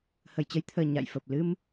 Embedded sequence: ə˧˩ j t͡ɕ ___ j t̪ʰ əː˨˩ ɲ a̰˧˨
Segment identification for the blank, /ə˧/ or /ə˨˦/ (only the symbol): ə˧